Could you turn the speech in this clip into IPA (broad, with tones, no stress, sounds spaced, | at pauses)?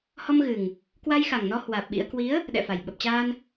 h ɔ˧ m ɣ ɨ˨˩ ŋ | k w a˧ j x a˨˩ ŋ n ɔ˧ h w aː˨˩ p̚ ɓ ḭ˧˥ ə̯ k w i˨˦ ə̯ | ɗ ɛ̰˧˨ f a˨˩ j ɓ ə˨˩ p̚ t͡ɕ aː˧ n